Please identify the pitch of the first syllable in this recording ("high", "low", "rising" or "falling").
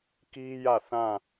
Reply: high